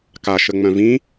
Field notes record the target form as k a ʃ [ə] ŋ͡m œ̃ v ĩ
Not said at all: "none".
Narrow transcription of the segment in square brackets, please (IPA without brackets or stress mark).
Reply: ə